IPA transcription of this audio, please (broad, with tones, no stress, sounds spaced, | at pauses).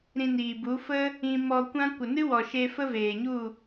ɾ ĩ˧ n iː˨ b u˨˦ f ə˦ | ĩ˧ m ɔ˧ kʷ ã˦ kʷ ə˨ n ɨ˦ w ɔ˨ ʃ e˧ f ə˦ v eː˨ ɲ u˦˨